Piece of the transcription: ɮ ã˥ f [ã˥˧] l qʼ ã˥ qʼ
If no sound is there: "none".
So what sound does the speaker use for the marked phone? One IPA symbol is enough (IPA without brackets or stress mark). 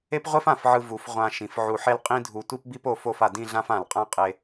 ã˧˩